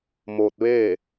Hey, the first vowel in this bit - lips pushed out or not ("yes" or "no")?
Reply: yes